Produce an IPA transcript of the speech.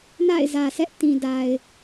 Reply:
n a̰˦˨ ɪ̯ z ä˨ sʰ ɛ˦ ʔ t ĩ˨ d a˨ ɪ̯

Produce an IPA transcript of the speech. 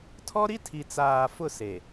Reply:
tʰ ɔ˦ ɾ i˦ tʰ i˨ t͡s aː˨ f ʊ˦˨ s e˨

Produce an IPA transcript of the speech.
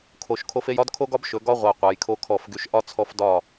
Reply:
kʰ o˨ ʃ kʰ o˦ f e˦ j ɒ˦ d kʰ o˦ ɡ ɒ˦ b ʃ ɵ˨˦ ɡ ɒ˦ ʁʷ a˨ qʷ a˨˦ j kʰ o˦ kʰ ɔ˦˨ f ɡ y˦ ʃ ʔ ɒ˦ t͡sʰ ɔ˦ f d ɒ˦˨

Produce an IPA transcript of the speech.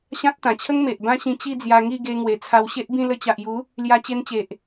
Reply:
ɕ ã˦ t̚ t̪ ã˨˩ t͡ɕʰ ə˦ ŋ m e˨ ʔ b ã˦ ɕ ĩ˧ t͡ɕ i˥˧ d͡z j a˧ ŋ i˥˧ ɡ e˧ ŋ w e˨˩ t͡sʰ a˧ w ɕ e˦ ʔ b ĩ˥˧ l ə˧ t͡ɕ a˨ ʔ j u˨˦ | l j a˧ t͡ɕ e˧ n t͡ɕ e˨ ʔ

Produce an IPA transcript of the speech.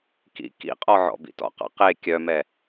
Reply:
k ḭ k ḭ qʼ ɔ ʕ ɔ̰ b ḭ t ɔ̰ q ɑ̰ q e kʲ œ m ɛ

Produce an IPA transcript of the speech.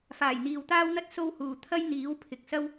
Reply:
f aː˨˩ j n̪ iː˨ w t̪ aː˥ w n̪ ɐ˥ t̚ s o˥ w h uː˨ t̪ʰ ɐ˥ j n̪ iː˨˥ w pʰ ɪ˨ k̚ s ɐ˥ w

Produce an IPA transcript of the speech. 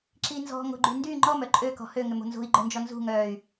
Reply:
ǁ i n z ɔ̤ ŋ o̤ ɡ͡ǃ y n d y ŋ͡ǃ ɔ m œ ǃʼ ø k ɔ̤ h ø ŋ ʏ m o̤ n z o̤ i̯ ɡ͡ǃ œ n d͡ʒ ɔ n z ṳ ŋ œː y̯

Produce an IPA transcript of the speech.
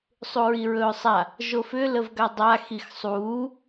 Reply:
sˤ u ɹ i ɹ ɵː sˤ a | ʒ o f ʏ l ə v ɡ a dˤ a x i x sˤ uː

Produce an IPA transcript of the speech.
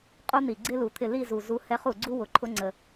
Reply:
qʼ u˥ n̪ i˨˩ ɡ͡ǀ ɪ˥ l u˨˩ t̪ʰ ɪ˥˨ l i˥˨ z u˨˩ z u˧˥ h ɛ˧˥ χ u˨˩ ɡ͡ǀ u˥ w ʊ˨˩ ǃʰ ʊ˧˥ ŋ͡ǀ ə˨˩

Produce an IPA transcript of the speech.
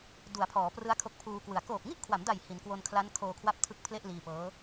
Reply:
d u˩˦ a̯ pʰ ɔː˩˦ p r ɯ˦˥ a̯ kʰ o˦˥ k̚ pʰ uː˧ k w ɯ˨˩ a̯ k oː˨˩ p̚ ŋ i˥˩ ʔ kʰ w a˩˦ m d a˨˩ j h i˩˦ n k w o˧ n kʰ l a˦˥ n kʰ oː˧ kʰ w a˦˥ p̚ tʰ ɯ˦˥ k̚ pʰ l e˥˩ ʔ l iː˧ p ɤː˦˥

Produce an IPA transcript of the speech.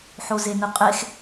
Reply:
ħ o z e n ɯ qʼ e x

